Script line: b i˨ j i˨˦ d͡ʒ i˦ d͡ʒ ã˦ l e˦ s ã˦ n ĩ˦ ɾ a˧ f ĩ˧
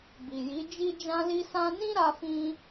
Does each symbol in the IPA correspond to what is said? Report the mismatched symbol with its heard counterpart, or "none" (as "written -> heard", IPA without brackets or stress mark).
e˦ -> i˦